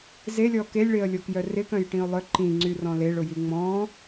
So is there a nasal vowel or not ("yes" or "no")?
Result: yes